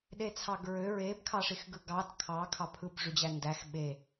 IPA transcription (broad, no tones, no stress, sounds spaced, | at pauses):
ɗ e t͡sʰ ɑ ɡ ɹ ø ɹ e b kʰ ɑ ʂ i x ɡ ɯ ɡ ɑ d kʰ ɑ kʰ ɑ pʰ ɯ b ʐ y d͡ʑ æ n d æ x ɓ e